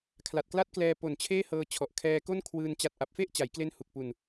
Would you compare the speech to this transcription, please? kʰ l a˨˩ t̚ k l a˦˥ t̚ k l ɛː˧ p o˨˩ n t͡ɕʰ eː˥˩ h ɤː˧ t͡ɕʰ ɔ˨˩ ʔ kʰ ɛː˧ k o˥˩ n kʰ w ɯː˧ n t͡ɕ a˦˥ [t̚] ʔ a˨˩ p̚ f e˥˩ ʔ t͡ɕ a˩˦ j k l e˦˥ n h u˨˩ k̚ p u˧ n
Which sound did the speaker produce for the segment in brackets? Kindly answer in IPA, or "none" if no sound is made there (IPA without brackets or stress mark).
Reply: t̚